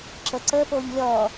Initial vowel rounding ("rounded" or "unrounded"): unrounded